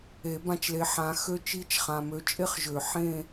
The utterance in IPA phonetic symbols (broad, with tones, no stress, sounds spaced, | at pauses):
e˨˩˦ b ã˦˥ t͡ʃ l e˨˦ ħ ã˨˦ x ø˦˥ t͡ʃ i˦˨ t͡ʃ χ ã˨ m ø˨˦ t͡ʃʼ e˦˥ χ ʒ ø˨˩˦ ħ ẽ˦˨